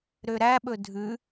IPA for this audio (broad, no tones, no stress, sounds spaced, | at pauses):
ɾ ø ɾ æ ɓ ɵ dʱ ʉ